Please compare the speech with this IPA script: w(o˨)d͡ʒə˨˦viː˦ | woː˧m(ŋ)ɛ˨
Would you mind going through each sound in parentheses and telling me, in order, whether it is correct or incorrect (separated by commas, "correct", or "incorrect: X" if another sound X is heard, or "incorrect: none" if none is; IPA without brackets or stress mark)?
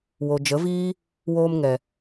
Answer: correct, correct